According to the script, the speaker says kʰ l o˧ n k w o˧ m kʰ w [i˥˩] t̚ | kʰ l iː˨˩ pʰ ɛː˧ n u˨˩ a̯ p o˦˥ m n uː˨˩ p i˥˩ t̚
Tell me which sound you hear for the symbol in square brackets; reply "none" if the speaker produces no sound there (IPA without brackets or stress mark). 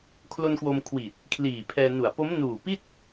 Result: i˨˩